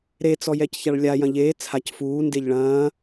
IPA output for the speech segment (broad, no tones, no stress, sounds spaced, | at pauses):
ɾ e t͡s ɔ j ɛ c ç a ɭ lʲ a j ɐ̃ ʎ eː t͡sʰ a c f uː n d e ʎ ɭ ɐ̃ː